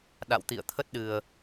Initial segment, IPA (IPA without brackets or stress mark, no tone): ɗ